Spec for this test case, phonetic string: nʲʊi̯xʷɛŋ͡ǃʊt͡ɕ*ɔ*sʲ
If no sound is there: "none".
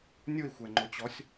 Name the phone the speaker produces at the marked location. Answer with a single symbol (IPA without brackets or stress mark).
ɔ